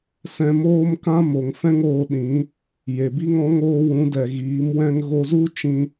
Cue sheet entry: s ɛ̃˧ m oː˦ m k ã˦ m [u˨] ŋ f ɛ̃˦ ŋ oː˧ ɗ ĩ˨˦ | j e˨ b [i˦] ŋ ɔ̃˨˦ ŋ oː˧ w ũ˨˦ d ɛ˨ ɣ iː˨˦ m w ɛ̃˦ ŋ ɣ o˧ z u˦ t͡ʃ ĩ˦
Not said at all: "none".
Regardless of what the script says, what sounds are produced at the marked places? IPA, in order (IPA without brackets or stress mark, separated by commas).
o˨, i˦